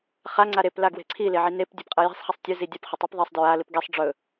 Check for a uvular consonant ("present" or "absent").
present